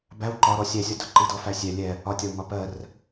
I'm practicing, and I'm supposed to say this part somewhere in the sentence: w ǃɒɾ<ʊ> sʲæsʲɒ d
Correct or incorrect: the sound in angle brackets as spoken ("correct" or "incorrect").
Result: incorrect